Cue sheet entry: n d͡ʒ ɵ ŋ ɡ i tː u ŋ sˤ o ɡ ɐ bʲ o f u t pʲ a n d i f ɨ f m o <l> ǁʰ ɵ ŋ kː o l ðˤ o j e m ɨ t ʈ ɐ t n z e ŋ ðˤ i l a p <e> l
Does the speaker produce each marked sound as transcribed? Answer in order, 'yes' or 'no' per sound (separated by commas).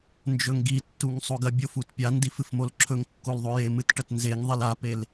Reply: yes, yes